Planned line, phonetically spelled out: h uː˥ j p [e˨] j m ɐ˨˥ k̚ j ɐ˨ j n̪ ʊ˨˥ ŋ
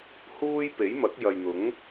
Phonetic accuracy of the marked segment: incorrect: e˨˥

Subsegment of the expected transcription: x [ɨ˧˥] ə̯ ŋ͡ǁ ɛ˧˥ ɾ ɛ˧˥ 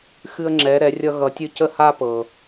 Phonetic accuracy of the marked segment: incorrect: ɨ˥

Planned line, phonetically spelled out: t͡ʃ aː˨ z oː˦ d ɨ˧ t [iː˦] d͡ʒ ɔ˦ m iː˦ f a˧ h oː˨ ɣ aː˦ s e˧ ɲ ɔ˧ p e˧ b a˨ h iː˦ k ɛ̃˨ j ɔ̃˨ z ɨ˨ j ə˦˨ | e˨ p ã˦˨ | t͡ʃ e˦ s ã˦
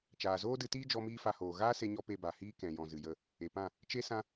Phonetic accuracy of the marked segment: correct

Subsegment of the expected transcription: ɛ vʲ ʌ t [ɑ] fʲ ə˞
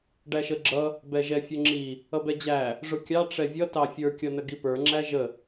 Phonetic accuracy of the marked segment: correct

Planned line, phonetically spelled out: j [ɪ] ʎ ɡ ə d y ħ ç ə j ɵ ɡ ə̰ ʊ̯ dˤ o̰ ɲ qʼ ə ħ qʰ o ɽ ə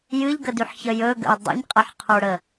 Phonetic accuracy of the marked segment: incorrect: ɨ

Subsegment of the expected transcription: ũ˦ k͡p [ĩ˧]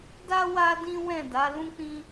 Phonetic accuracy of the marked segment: incorrect: ĩ˦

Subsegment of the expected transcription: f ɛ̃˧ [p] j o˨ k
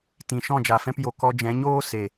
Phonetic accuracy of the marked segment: correct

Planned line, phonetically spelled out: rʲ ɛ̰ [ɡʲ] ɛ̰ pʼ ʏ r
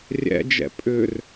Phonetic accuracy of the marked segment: incorrect: d͡ʒ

